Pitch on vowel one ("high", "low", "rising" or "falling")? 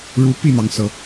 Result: rising